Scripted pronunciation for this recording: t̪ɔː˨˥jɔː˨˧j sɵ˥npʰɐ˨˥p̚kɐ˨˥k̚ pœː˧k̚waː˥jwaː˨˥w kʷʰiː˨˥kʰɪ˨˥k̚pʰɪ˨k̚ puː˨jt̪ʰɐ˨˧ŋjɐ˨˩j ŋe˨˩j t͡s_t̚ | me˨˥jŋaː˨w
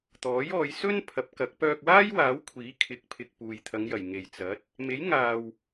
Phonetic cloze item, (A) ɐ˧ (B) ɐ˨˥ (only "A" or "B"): B